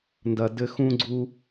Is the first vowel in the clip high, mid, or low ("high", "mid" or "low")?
low